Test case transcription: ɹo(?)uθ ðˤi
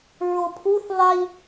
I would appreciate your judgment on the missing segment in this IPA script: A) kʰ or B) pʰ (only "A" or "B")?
B